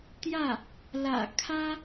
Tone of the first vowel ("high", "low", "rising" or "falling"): falling